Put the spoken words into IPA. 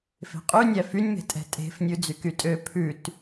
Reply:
f e̤ qʼ y nʲ æ f y nʲ m e̤ tʼ ɛ̤ tʼ e̤ f nʲ ʉ d͡z y k y tʼ ø pʰ ʉ t

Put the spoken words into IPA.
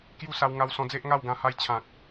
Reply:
k j u˥˧ s a˧ w ŋ a˧ w s ɔ̃˧ d͡z e˦ ʔ ŋ a˥˧ w ɡ ã˥˧ h a˥˧ j t͡ɕʰ ã˨ k̚

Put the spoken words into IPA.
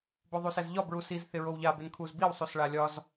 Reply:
b o ðˤ u s ɛ z ʎ ɒ b ɹ u s i z θ ɪ ɹ o w ʎ a b ɪ n kʰ u z b i w sˤ u s ɭ a lʲ ɒ z

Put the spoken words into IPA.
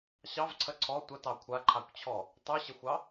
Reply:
ɕ ɑ v ǀʰ ə ǀʰ ɔ tʷ ə t ɑ kʷʰ a ǃʰ a kʷ t͡ɕʰ ɔ | tˤ ʉ ɕ ə xʷ ɑ

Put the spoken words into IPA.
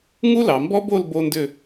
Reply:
ŋ u˥ l ɑ˩˧ m b ɔ˥ b o˥˧ l b o˥ n d ʏ˥˧

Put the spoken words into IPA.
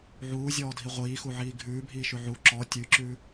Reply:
ʕ uː zʲ ɔː dʱ i ʁʷ iː x u ʕ iː ɡʱ ʉː bʱ iː ʃ ʉ ʕ u ǁ ɔ tʲ ʉ ǁ ʉː

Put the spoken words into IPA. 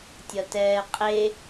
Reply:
tʲ ʌ t ɛː qʼ e

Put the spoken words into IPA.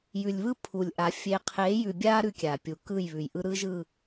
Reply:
j ʉ˨ lʲ β ɯ˦ pʰ u˨ lʲ ʔ a˨˦ fʲ e˨ qʰ e˨˦ j ʉ˨ bʲ a˦ ɾ ʉ˦ kʲ a˨ pʲ u˨ k ɯ˦˨ j β ʉ˨ j ʔ ɯ˦ ɾ ɯ˦ ʒ ɯ˦˨

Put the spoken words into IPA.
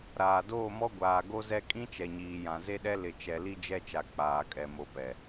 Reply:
ɾ aː˨ d oː˦˨ m ɔ˦ ɡʷ aː˨ ɡ o˦ z ɛ˦ kʼ ĩ˦ t͡ʃ ɛ˨ ɲ iː˨ j ã˨ z e˦ ɗ ɛ˦ l ɪ˨ t͡ʃ ɛ˨ l i˦ d͡ʒ ɛ˦ t͡ʃ a˨ k͡p aː˨ kʼ ɛ˨ m o˨ p ɛ˨

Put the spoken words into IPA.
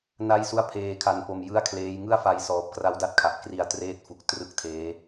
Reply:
n a˥˩ j s u˥˩ a̯ pʰ eː˧ kʰ a˧ n p o˧ m j ɯ˥˩ a̯ kʰ l eː˦˥ j ŋ ɯ˥˩ a̯ f a˧ j s ɔː˨˩ p̚ k r a˦˥ w d a˦˥ t̚ kʰ a˨˩ ʔ k r i˧ a̯ t r eː˦˥ t̚ f u˨˩ k̚ t r ɯ˥˩ k̚ tʰ eː˦˥

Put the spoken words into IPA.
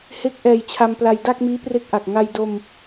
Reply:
h e˦˥ k̚ ʔ ɛː˧ j t͡ɕʰ a˧ m p l a˧ j d a˥˩ k̚ m iː˦˥ p r e˦˥ k̚ ʔ a˨˩ k̚ ŋ a˧ j d o˧ m

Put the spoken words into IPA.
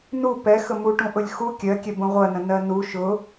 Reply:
n u p ɛ x ə m u ʈ ũ ʔ ʊ lʲ x u kʲ ɜ kʲ ɛ b ũ ʁʷ ɜ n ə̃ n ɜ n u ʃ ʊ

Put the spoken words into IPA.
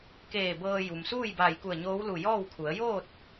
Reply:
k eː˧˩ b ɤː˧ j u˩ m s uː˥˨ j b aː˧˩ j k u˧˩ ə̯ ɲ oː˧˥ w l u˧˩ j ɔː˥˨ w kʰ u˩˧ ə̯ j oː˥˨ t̚

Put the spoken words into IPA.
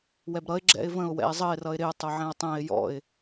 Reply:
w ɛ b ɾ ʌ ɪ̯ ɡ͡ǁ ɛ̰ ɪ̯ v ə̃ ʊ̯ w ɛ̰ ɪ̯ zˤ ə ɪ̯ r ʌ ɪ̯ ɾ ɪ ʊ̯ tˤ ʊ ʕ ɛ̃ ʊ̯ tˤ ɛ̃ ɪ̯ j ɔ̰ ɪ̯

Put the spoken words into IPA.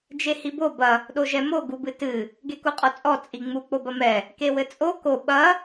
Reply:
d͡ʒ e h i b o b ɐ | ɗ o ʒ ɛ m o ɡ u b ɨ t ɨ | ɡ e k u qʼ ɔ t͡sʼ ɔ t͡sʼ i ŋ͡m u k͡p o b ɐ m ɛ | k e w ɘ t͡sʼ o k o ɓ ɐ

